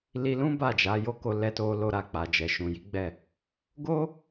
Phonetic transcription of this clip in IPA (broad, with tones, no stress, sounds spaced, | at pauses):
l i˧ l ũ˦ b a˦˨ d͡ʒ a˨˦ j o˦ k o˧ l ɛ˧ t o˧ l o˧ ɾ a˧ k͡p a˨ d͡ʒ ɛ˨ ʃ ũ˨ j i˨˦ ɡ͡b ɛ˦˨ | ɡ o˦